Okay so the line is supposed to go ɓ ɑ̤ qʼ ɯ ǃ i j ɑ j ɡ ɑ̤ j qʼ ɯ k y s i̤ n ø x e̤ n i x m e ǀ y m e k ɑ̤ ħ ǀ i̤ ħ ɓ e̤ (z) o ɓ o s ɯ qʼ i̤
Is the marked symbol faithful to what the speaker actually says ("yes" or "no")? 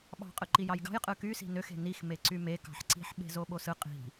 yes